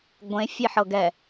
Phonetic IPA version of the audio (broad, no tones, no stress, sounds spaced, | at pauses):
ɡʷ ẽ fʲ e ħ ɤ ɡ ɛ